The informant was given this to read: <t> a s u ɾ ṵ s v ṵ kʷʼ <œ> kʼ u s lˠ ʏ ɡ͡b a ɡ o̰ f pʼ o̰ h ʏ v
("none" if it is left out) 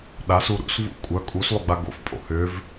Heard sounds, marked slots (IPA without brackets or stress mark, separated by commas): ɗ, œ